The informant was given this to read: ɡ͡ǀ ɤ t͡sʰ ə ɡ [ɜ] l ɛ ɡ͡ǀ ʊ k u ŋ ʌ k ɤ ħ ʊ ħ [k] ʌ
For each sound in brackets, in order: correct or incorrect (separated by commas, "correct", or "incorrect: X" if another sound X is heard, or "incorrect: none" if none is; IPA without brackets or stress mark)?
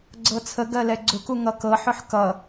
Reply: correct, correct